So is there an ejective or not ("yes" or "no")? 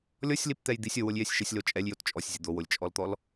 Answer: yes